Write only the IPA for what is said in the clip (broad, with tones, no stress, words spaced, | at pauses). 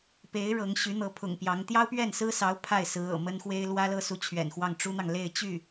pe˧˥ɪ̯ ɻɤ˧˥ŋ ɕy˧˥n̪ɤ˧˥pʰʊ̰˨˩ŋpjɑ˧˥ŋ t̪jɑ˥ʊ̯pɥɛ˥˩nsɹ̩˥sɑ˧˥ʊ̯ pʰa˥˩ɪ̯ sɹ̩˧˥ɤ̰˨˩mə˥nxwe˥ɪ̯ lwä˥lɤ˥su˧˥ t͡ɕʰɥɛ̰˨˩nxwɑ˥˩ŋ ʈ͡ʂu˥n̪ɑ˨ŋ le˥˧ɪ̯t͡ɕy˥˩